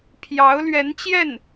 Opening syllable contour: rising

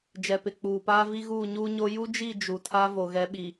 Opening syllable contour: low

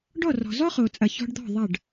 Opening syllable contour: falling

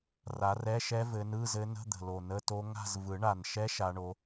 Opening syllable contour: rising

